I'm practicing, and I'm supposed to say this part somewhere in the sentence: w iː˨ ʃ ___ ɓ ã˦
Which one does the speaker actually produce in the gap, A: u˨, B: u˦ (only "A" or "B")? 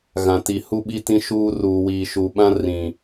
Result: A